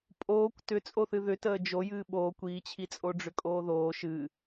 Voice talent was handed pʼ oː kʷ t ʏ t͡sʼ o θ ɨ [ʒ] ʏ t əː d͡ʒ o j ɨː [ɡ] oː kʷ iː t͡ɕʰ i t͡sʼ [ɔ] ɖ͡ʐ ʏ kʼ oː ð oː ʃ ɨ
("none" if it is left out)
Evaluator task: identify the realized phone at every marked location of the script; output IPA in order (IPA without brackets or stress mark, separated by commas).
ð, ɓ, o